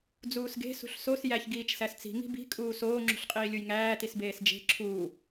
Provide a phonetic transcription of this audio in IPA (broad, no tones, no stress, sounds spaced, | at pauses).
d͡z uː s ɡ e̤ s ṳ ɬ s o s j æ ç ɡ iː t͡ʃ s æ s t͡s i̤ ŋ i̤ b i̤ kʼ uː s oː ŋ͡ǁ ṳ ɬ qʼ iː lʲ u j ŋ æː t i s b eː s d͡ʒ e̤ ǁʰ uː